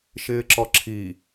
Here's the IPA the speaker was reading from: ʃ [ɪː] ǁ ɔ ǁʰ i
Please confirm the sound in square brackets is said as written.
yes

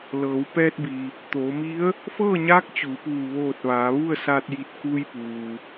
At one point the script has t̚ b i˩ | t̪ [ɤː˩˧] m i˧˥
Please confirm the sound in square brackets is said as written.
no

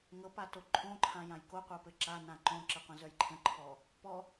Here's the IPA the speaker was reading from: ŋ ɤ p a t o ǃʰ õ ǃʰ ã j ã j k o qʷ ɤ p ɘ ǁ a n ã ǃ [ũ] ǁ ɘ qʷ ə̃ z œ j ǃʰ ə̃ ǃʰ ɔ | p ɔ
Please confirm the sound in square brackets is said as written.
no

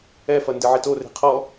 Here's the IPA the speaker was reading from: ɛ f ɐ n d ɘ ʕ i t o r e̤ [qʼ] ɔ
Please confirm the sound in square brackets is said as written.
no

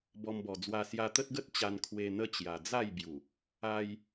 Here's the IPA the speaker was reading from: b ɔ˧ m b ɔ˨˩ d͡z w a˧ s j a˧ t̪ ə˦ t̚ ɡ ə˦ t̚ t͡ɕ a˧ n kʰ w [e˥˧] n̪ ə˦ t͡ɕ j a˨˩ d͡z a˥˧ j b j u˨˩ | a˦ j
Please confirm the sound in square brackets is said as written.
no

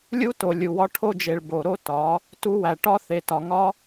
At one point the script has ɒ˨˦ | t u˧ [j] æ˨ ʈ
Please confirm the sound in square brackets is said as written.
no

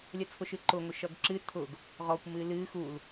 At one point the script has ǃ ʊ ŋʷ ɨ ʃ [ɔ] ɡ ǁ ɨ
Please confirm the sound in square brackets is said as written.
no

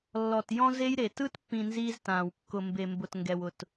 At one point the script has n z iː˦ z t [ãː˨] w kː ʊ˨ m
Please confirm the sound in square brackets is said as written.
yes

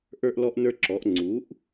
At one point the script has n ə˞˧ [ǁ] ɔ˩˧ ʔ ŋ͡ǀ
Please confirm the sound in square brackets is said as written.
yes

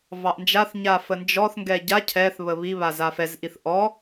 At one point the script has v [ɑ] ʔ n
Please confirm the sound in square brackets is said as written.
yes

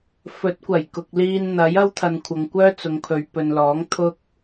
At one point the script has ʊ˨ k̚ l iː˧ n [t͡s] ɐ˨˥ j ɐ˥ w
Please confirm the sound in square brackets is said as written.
no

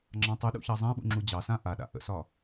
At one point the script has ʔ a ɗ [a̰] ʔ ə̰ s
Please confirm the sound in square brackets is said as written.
yes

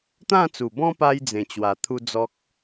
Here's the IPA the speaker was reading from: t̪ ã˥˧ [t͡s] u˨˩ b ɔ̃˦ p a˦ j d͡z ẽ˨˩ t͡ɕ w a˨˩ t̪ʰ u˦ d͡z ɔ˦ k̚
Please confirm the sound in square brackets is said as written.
yes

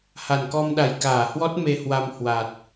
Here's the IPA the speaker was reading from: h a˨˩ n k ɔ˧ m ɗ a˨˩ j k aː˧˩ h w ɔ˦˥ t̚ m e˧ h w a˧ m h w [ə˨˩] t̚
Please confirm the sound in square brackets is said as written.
no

